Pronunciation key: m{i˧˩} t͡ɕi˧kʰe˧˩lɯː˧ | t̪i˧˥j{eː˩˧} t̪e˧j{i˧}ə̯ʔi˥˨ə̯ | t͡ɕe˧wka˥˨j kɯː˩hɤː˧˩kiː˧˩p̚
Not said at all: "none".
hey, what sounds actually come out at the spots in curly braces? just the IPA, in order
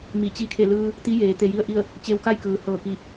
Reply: i˧˩, eː˩˧, i˥˨

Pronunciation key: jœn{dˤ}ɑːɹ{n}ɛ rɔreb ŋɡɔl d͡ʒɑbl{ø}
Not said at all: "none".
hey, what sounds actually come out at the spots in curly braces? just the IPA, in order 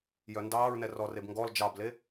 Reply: d, n, e

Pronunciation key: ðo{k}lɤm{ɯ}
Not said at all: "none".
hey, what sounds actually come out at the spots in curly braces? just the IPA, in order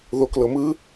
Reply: k, ɯ

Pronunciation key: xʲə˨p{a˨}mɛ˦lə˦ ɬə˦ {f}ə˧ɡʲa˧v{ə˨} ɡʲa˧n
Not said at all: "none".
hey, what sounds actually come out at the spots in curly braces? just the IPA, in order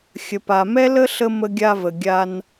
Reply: a˨, m, ə˨

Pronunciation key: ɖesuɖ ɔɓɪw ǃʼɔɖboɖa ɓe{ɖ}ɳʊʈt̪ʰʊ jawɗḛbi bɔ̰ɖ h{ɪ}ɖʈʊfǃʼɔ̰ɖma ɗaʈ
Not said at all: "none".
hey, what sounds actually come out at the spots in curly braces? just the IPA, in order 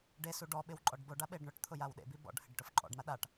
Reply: ɖ, ɪ

